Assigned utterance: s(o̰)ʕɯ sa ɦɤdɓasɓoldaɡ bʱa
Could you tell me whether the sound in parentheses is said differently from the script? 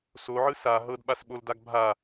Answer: yes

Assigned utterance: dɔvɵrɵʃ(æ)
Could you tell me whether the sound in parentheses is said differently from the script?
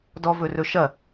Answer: yes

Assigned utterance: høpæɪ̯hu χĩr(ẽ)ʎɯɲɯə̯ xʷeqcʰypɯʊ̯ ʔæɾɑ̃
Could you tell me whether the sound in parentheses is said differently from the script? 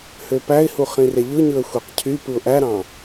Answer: yes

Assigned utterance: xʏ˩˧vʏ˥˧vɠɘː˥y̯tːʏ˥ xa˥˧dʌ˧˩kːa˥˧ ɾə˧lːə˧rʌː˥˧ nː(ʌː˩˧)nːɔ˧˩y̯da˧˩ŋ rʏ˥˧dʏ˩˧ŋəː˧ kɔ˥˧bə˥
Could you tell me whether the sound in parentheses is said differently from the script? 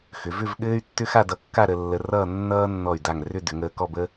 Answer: yes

